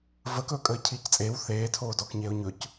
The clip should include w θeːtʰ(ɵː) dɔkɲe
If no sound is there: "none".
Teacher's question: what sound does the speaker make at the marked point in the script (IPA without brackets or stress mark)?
oː